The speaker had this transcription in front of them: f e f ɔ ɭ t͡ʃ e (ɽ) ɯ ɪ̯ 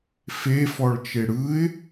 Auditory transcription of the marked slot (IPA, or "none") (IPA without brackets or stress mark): ɽ